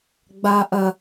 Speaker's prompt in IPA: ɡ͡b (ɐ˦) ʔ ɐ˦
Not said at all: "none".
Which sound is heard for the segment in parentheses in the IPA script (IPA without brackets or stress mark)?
a˦